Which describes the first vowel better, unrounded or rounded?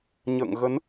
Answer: unrounded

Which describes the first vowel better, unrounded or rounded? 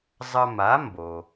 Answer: unrounded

